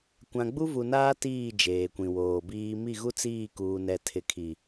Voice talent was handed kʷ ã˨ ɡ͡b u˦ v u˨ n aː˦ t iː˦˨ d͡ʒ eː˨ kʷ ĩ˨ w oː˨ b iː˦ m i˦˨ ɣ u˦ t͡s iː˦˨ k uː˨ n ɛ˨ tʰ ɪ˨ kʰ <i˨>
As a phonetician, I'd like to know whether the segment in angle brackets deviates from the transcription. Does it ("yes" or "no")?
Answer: no